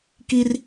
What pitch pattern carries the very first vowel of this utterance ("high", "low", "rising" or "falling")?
high